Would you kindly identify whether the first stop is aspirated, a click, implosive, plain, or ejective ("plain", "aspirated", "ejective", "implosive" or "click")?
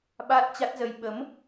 implosive